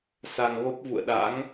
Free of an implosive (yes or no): no